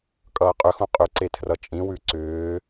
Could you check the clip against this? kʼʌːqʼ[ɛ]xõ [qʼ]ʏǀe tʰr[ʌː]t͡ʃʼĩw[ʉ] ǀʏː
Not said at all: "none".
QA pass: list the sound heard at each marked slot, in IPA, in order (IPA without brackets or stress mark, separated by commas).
ʏ, qʼ, ʌ, ʉ